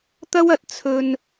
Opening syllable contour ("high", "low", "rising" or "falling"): high